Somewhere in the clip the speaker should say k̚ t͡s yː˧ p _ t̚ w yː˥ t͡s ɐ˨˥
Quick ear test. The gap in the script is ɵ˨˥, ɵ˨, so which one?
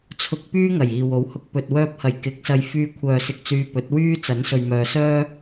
ɵ˨˥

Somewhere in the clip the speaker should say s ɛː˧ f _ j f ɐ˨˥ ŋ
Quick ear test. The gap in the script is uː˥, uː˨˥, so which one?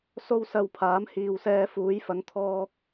uː˨˥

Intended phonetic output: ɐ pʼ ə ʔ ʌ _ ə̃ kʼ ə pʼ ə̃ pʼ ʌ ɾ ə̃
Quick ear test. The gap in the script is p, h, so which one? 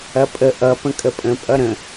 p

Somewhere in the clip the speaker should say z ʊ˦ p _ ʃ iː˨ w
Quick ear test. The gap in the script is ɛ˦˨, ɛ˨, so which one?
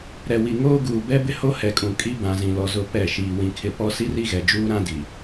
ɛ˦˨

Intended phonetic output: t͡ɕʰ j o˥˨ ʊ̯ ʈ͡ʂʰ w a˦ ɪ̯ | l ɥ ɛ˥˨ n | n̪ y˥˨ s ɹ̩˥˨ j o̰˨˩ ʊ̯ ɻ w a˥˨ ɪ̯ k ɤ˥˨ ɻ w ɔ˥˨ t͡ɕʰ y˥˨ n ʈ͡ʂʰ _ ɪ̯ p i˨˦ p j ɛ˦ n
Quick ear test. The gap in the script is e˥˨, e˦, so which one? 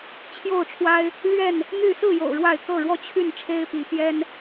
e˦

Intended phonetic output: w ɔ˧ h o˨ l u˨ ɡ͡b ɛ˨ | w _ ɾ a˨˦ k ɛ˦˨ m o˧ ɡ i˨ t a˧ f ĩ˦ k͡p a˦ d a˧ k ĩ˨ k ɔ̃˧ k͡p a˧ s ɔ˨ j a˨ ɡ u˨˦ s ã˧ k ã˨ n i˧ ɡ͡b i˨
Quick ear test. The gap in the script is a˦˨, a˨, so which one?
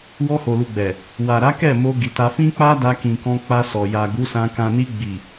a˨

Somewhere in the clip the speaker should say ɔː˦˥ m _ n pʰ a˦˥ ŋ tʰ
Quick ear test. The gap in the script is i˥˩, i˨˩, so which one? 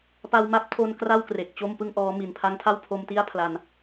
i˨˩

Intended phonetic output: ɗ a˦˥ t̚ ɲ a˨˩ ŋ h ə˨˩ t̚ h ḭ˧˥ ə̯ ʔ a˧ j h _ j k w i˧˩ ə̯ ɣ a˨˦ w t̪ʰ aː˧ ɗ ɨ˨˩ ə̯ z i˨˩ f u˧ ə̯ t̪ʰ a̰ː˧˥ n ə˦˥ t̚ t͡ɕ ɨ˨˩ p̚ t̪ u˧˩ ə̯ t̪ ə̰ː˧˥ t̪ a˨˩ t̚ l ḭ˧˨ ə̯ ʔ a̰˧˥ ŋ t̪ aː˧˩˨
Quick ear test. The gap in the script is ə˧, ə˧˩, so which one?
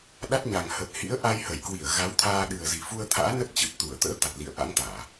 ə˧˩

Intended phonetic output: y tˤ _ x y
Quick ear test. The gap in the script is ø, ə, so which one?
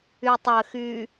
ə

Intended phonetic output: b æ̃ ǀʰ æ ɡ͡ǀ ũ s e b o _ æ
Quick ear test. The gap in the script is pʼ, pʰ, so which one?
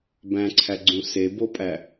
pʼ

